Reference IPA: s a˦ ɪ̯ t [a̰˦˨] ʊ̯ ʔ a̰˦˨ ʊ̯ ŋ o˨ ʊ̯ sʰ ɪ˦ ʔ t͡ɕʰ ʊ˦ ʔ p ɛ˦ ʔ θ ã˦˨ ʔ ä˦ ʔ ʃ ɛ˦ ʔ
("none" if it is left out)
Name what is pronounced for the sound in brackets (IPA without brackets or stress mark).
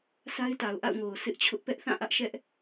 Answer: a˨